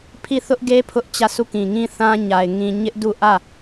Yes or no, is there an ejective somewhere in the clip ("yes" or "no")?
no